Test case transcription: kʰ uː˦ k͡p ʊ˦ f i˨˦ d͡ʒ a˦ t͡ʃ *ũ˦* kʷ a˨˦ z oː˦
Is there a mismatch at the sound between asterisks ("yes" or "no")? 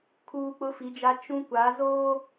no